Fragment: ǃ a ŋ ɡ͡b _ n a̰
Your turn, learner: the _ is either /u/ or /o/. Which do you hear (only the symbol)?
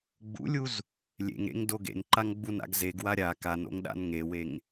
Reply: u